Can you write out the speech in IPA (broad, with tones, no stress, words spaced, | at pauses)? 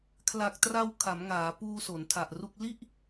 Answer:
kʰla˨˩k̚tra˧w kʰa˩˦mŋaː˩˦ puː˧ so˩˦ntʰa˨˩ʔru˥˩k̚ li˥˩ʔ